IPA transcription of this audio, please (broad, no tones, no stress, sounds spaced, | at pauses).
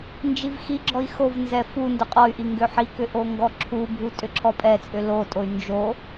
n d͡ʒ i v x i ɡ͡ǁ ɔ i̯ x o v n z ɛ f u n d ʊ qʼ ɔ y̯ ʔ i ŋ ɡ ʏ ħ i k ʏ ʔ o ŋ ɡ ɔ ǁʰ u bʱ u tʼ ʏ ǁʰ ɔ pʼ ɛ t͡sʼ ʏ l o tʼ o y̯ n d͡ʒ o